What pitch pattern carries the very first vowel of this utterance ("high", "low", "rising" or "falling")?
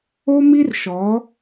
high